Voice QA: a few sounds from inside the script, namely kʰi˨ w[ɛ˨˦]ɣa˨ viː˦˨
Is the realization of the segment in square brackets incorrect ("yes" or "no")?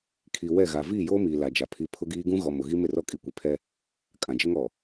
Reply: yes